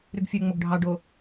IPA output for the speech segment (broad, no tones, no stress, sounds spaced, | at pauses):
ɾ y ɡ fʲ ø ŋ͡m o ɡ ɖʱ ɑ ɖ o